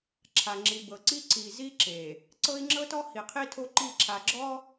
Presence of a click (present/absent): present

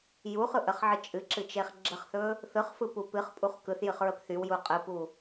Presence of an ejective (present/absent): present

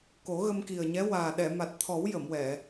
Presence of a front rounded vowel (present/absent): absent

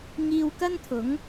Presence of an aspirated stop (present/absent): present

